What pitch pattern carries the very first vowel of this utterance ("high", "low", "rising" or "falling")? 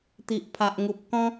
low